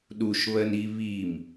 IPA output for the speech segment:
ɗ u ʃ β ɜ n i β i m

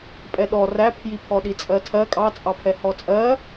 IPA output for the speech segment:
pʼ ɛ ɗ ɔ r æ pʰ j i pʰ ɔ ɗ i t͡sʼ ɜ tʰ ɜ kʼ ɑ t͡sʼ ɑ pʰ ɛ h ɔ t͡sʼ ɜ

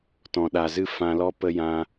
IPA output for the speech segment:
t ɔ̃˨ ɗ a˨ z ɨ˦ f ã˧ l ɔ˦ p ə˧ j ã˧

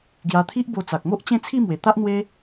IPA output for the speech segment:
ɡ j a˧ t̪ʰ i˦ ʔ b o˧ t͡s a˨ k̚ m o˦ ʔ t͡ɕ ẽ˥˧ t͡sʰ i˥˧ m w e˨˩ t̪ a˦ ʔ n̪ w e˦

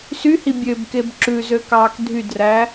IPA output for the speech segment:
s y h i bʲ ø b k e b ǁ ʉ z ø k ɑː k dʱ y d r æ

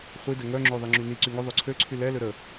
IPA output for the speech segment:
χʷ i d ɛ ŋ œ ŋ͡ǁ ø ðˤ i ŋ͡ǁ y n i ǀ y ŋ œ ðˤ ø ǀʰ ø ǀʰ y l ɛ l ø ɾ ə

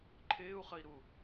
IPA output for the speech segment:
ǃʰ ɪː u̯ χ ə i̯ ɾ u

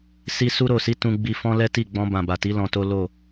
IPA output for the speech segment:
s i˧ s u˧ ɾ o˨ s i˨˦ t ũ˧ ɡ͡b i˧ f ɔ̃˦ l ɛ˦ t i˦˨ ɡ͡b ɔ̃˧ b ã˨ b a˨ t i˨˦ l ɔ̃˧ t o˦ l o˦˨

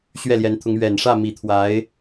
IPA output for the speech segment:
ɕ ɥ ɛ˥˩ l j ɛ˧˥ n t̪ʰ ʊ˧˥ ŋ ɥ ɛ˨˩ n ʂ ä˥˩ m i˨˩ t̪ʰ w a˧˥ ɪ̯

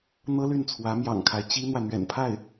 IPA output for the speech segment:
n̪ ɤ˥ l y˥˩ n t͡sʰ w ä˧˥ m j ɑ̰˨˩ ŋ kʰ a˦ ɪ̯ t͡ɕ i˥ n̪ w ä˨ n̪ ɥ ɛ̰˨˩ n pʰ a˥˩ ɪ̯

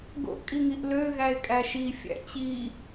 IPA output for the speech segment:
ɡ o̰ ʔ kʼ i ŋ i ʔ l ø ɣ æ ɪ̯ kʼ æ ʃ i fʲ æ̰ t͡ɕ i

